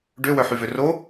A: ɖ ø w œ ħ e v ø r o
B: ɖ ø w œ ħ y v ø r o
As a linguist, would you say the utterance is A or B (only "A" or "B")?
B